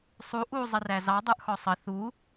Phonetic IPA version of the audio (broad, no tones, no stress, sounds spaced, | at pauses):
sˤ u ʔ u zˤ ɪ r æ z ɑ dˤ ə˞ ʔ x ɔ sˤ ə θ u